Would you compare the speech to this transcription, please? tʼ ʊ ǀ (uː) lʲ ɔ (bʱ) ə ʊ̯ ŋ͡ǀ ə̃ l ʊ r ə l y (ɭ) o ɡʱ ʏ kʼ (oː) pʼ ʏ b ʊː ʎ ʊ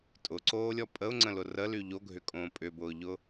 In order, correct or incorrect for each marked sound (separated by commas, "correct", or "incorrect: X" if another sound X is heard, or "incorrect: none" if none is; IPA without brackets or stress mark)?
incorrect: oː, incorrect: pʼ, incorrect: ʎ, incorrect: õː